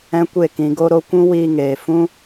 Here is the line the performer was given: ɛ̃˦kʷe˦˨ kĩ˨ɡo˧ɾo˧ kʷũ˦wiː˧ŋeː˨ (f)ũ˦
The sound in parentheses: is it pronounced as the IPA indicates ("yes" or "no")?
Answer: yes